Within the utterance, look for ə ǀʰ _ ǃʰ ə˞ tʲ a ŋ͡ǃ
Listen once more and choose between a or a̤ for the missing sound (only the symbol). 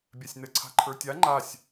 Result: a̤